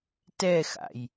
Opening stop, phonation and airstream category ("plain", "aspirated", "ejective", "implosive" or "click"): plain